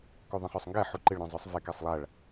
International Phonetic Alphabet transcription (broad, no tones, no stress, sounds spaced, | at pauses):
k u ðˤ ɛ̃ χ o sˤ ŋ ɡ ɛ ħ u ǃ ɪ ɭ ɾ œ̃ zˤ ø sˤ v ɛ k ɛ sˤ lˠ a ɭ